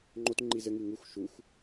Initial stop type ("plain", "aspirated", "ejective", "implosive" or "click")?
click